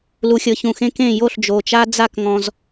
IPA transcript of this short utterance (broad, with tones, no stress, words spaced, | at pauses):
lu˩xʲɤ˩çũ˩xẽ˧ kẽ˧˩ jo˧˩ɬd͡ʒo˩t͡ʃa˧ d͡za˥˨kŋɔ̃˧z